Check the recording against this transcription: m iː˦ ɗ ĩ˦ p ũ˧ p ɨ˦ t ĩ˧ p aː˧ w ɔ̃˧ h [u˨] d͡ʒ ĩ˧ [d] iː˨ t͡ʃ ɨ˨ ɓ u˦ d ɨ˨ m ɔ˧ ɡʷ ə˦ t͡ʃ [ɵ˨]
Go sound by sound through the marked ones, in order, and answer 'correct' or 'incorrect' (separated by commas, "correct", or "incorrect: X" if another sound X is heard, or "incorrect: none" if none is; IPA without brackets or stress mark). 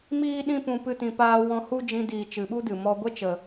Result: incorrect: u˦, correct, incorrect: ə˨